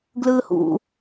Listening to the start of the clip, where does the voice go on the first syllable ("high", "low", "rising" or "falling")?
high